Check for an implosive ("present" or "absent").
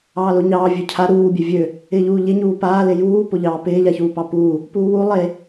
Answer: absent